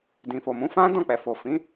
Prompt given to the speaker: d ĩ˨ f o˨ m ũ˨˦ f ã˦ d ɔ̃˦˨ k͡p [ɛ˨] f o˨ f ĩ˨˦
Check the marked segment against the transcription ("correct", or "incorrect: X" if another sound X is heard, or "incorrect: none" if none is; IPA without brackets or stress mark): correct